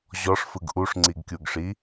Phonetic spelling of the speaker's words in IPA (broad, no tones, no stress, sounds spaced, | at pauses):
ʑ ɔ ʂ f ɯ ɡ ʔ u ʂ ŋ͡ǀ i ɡ kʲ u ɡ ʂ i